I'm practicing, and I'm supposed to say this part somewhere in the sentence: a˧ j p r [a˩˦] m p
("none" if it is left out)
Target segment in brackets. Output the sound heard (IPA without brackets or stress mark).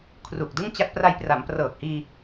a˩˦